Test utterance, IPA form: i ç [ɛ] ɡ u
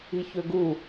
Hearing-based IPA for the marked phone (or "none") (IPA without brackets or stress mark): ø